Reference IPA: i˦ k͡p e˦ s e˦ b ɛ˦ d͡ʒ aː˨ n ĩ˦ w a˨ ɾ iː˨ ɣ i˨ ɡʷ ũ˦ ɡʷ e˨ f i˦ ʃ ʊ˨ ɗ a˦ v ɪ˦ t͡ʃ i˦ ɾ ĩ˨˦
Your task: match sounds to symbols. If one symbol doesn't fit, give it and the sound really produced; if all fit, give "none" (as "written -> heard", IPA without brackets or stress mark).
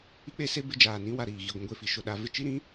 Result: ɛ˦ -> ɪ˦